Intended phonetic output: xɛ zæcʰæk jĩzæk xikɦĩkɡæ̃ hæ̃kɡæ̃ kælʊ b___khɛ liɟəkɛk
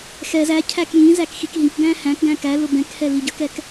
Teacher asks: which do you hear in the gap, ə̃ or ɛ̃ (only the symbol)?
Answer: ɛ̃